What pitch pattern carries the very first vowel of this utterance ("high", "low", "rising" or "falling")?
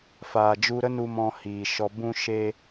low